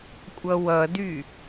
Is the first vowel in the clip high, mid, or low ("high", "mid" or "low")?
mid